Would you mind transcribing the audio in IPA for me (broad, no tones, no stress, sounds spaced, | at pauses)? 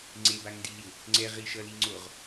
ŋ͡ǀ e b a ŋ n d i l i w | ŋ͡ǀ ɛ ʁ i ʃ ʌ l i ŋ͡ǀ o ʁ